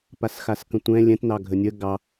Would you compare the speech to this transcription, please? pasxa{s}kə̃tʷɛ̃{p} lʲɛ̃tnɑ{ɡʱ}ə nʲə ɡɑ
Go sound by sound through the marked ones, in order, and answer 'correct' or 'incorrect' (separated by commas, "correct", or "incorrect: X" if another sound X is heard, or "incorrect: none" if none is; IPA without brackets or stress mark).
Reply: correct, incorrect: none, correct